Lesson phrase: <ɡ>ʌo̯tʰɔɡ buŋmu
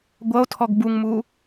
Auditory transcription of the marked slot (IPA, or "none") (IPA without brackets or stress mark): ɡʷ